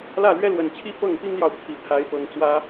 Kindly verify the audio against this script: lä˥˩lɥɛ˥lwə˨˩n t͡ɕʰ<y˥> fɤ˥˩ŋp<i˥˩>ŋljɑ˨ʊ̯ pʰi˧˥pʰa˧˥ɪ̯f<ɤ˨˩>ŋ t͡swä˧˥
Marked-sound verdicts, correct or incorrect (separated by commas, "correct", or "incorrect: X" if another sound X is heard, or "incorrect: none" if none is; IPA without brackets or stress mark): incorrect: i˥, incorrect: i˥, correct